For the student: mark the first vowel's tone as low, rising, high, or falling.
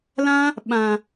high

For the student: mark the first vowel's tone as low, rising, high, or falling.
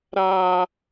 high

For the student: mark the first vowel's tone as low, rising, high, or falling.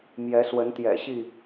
rising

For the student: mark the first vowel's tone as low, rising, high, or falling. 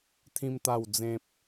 high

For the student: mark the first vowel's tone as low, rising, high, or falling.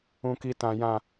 high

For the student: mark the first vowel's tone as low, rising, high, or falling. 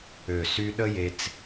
low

